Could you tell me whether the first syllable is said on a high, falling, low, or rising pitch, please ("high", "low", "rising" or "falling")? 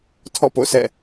falling